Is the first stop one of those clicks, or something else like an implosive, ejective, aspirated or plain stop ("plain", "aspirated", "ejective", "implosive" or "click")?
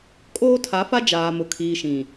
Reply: ejective